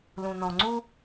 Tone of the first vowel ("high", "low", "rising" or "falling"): low